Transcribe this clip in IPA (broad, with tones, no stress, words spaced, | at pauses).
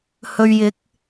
hɵ˧ɥjɪ˨˥k̚